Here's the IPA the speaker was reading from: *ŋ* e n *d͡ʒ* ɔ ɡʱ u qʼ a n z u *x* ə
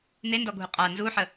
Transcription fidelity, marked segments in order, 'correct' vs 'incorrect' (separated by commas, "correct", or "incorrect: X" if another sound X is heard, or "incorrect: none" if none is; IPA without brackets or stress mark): incorrect: n̪, incorrect: d, incorrect: ħ